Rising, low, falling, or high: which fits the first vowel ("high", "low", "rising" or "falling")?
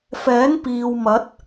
rising